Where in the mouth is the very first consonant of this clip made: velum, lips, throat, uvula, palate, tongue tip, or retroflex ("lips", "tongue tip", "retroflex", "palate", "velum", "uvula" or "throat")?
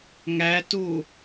velum